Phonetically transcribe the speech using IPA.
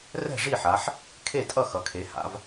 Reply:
rɛ̤˥˨ʐi˥˨ħa˩˧ħ | kʰe˥˨tʼʌ˥˨ xʌ˩˧kʰe˩˧ha̰˩˧v

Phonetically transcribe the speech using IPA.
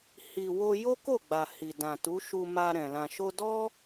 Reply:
hi˨wo˧ jo˦ko˦˨ɡ͡ba˨ hi˨dã˨tu˨˦ ʃu˧ma˧ɾɛ̃˨ lã˨ʃo˧dɔ˦

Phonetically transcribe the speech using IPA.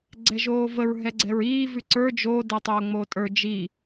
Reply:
ɡ͡ǀɛʒoːvəɹ ɦɛɡ͡ǀɛɹiː vʉǀə˞ d͡ʒo dɛtˤoːŋ͡moːtʼə˞ d͡ʒi

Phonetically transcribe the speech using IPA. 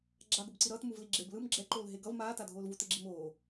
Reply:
ɡ͡ǁaɡobǀi ɾʌːt muvliɡ͡ǁeb lɯm ɡ͡ǁɛǃoːl ɦeɡʌv maːtadʱoːlvu teɡ͡ǁimoː

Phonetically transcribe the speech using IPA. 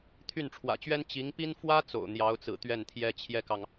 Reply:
t̪ʰy˥˩nʈ͡ʂʰwä̰˨˩t͡ɕɥɛ˥n t͡ɕi˧˥ŋpi˥n fwä˥ t͡so̰˨˩ʊ̯n̪jɑ˧˥ʊ̯t͡sɹ̩˨˩ t̪ɥɛ˥˩nt̪ʰjɛ˥t͡ɕʰjɛ˥˩kɑ˩ŋ

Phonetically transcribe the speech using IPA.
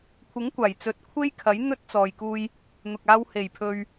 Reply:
kʷʰɪ˨˥ŋkʷaː˨˩jt͡sɵ˨˥t̚ kʷʰe˥jkʰɐ˨˥j n̪ɵ˥t̚t͡sɔː˨jkuː˧j | n̪ʊ˨k̚aː˧w he˨˩jpʰɵ˨ɥ

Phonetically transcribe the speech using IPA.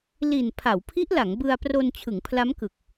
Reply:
li˨˩n pʰa˩˦wpʰi˦˥ʔla˩˦ŋ bɯ˧a̯pro˧n t͡ɕʰɯ˩˦ŋpʰla˦˥mkɯ˨˩k̚

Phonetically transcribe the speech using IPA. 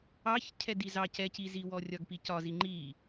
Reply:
ɑç cʰɛdizɑ cɛciziwɔ rʲɒɡpicɒ ziŋ͡ǃi

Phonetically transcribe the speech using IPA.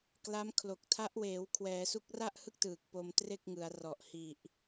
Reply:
kla˦˥mkʰlo˨˩k̚ tʰa˦˥ʔweː˩˦wkʰwɛː˩˦su˦˥k̚ ra˥˩ʔhɯ˥˩k̚tɯː˨˩k̚ po˧mtre˥˩k̚ŋɯ˩˦a̯rɔ˨˩ʔ hi˨˩ʔ

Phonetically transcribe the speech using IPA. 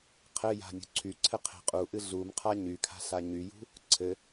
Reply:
qʰɘja̤ nʲṳǀʰyǀʰɘ qʰe̤qʼuʔɨ ɮumqʰa ɲykʰa̤ ɬaɲyjṳ | ǀʰɘ

